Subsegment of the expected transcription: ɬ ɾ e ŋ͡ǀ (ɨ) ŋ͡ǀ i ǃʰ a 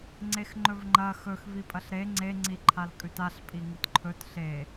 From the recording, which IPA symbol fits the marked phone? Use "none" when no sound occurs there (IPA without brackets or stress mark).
e